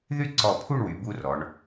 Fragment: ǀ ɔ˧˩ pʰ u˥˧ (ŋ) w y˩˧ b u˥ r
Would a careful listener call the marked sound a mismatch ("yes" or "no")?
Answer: yes